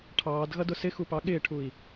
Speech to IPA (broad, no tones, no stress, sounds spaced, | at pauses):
ʈʰ ɑː d ɣ ʌ d ʊ s ɪ x u p ɑ ɠ ɪː ʈʰ u i̯